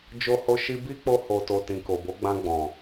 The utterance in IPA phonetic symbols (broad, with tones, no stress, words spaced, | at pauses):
d͡ʒo˧ho˧ ʃi˧bi˦ k͡po˧ho˨to˨ tĩ˨ko˨bo˨˦ ɡ͡bã˧ɡ͡bɔ̃˨